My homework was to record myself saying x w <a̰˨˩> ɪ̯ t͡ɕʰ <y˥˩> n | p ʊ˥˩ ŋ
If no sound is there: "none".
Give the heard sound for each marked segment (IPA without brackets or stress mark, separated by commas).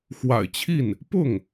a̰˨˩, i˥˩